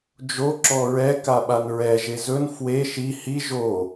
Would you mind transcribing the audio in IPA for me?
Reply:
d͡ʒ o ǁ ɔ ɹ ɛ k a ɓ a n ɹ ɛ ʒ e z ɵ n f w e ʃ i h i ʒ o

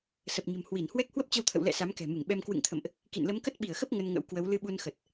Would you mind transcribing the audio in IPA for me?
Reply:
s ə˨˩ p̚ ɲ ə̤˨˩ m h w i˧˩ n h w ɛ˦˥ k̚ h w ə˦˥ p̚ t͡ɕ ə˧ w t̪ʰ ə̰˧˨ w l ɛ̰˧˨ s a˨˦ m k ɛ̤˨˩ m ɨ˧˩ ŋ ɓ ɛ˧ m k w ɨ̰˧˨ ŋ t̪ʰ ə̰˧˨ m ʔ | k ḭ˧˨ n l ə˨˦ m k ə˦˥ t̚ ɓ i˧˩ ə̯ x ə˦˥ p̚ ŋ ə˧ n ŋ ə̰˧˥ w k w ə˨˦ w l ɨ˧ ɓ u˧ n x ə˨˩ t̚

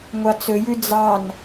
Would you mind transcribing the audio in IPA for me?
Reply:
ŋʷ ɑ t͡s ɵ j ʉ d͡z ɑ n

